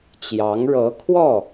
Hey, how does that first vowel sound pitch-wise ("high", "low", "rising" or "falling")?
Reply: rising